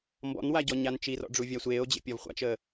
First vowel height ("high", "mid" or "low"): mid